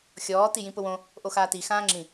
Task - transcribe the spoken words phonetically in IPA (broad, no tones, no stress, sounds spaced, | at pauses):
xʲ ɔː t i j ĩ p ʊ w õ | ʔ o x aː t i x ãː ŋ͡ǁ ĩ